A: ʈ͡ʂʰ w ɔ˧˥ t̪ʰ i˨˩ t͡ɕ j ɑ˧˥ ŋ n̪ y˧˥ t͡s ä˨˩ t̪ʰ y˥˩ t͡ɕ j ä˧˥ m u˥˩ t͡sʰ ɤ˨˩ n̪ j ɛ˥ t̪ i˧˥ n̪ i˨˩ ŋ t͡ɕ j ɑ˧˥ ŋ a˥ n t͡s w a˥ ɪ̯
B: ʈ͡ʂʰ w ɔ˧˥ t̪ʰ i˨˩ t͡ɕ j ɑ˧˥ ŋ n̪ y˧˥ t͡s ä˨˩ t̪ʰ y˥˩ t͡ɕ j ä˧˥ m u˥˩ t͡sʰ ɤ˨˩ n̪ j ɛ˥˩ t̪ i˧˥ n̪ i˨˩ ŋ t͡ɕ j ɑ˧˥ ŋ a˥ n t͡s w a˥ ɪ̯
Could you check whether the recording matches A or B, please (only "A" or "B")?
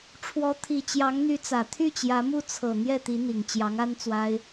B